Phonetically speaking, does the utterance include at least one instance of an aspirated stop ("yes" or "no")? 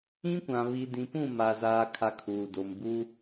yes